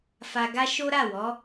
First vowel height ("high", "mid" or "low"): low